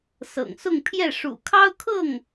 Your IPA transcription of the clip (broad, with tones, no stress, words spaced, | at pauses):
sɤ̰˨˩ŋsʊ˥˧ŋpʰjɛ˥˩ ʂṵ˨˩kʰɑ˥ʊ̯kʰɤ˥˩ŋ